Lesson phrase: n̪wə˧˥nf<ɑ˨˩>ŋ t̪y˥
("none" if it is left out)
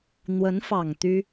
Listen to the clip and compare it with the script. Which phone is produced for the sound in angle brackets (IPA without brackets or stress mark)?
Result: ɑ˨˩